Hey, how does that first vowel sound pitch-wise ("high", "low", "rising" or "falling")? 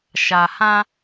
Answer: low